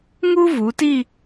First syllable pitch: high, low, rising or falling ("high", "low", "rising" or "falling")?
high